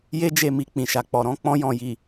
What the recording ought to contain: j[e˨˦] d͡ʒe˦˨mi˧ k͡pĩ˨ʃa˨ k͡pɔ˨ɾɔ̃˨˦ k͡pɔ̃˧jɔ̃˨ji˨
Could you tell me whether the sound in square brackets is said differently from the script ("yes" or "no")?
yes